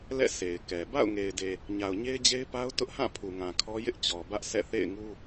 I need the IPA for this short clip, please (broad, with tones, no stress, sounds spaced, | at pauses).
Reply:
l ɛ̰˦˨ sʰ e˨ ɪ̯ k ɛ˨ b a̰˦˨ ʊ̯ ŋ e˨ ɪ̯ d e˨ | ɲ a˨ ʊ̯ ɲ e˦ ɪ̯ d͡ʑ e˦ ɪ̯ p a˦ ʊ̯ t ʊ˦ ʔ h ã˦˨ pʰ u˨ ŋ ã˨ kʰ ɔ˦ j ɪ˦ ʔ t͡ɕ ɔ˨ b ä˦ ʔ sʰ ɛ̰˦˨ θ ḛ˦˨ ɪ̯ ŋ u˦